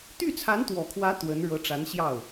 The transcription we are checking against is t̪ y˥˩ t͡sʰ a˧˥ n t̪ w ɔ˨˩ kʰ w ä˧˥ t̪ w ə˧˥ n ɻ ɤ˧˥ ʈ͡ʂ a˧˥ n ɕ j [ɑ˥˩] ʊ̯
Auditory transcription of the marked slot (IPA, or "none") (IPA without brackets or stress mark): ɑ˥˩